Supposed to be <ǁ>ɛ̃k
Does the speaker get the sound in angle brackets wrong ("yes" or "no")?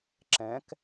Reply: no